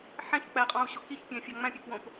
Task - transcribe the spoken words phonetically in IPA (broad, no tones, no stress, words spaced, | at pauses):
ħæ̃çk͡pæqʼɑ̃u̯ɕo kiçpʲæ̃fʲɑ ŋ͡mæ̃pʲøkwõp